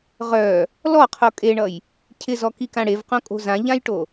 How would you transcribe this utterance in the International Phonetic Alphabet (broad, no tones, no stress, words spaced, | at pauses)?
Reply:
ʁœ | lɔqʰo kʼeɳʌj | cʰɪzɔkikã ɽevqõkʼo̤ zãʎãjʈo